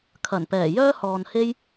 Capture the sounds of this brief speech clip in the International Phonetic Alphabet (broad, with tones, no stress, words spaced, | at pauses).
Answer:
kʰɐ˨˩npɛː˨˩ jœː˥hɔː˨nhe˥j